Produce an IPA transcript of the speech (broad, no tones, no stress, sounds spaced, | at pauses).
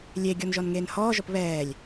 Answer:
lʲ e ɡʲ ɔ n ʒ ɔ n ŋ eː n h ɔː ʒ ɔ p β ɛː lʲ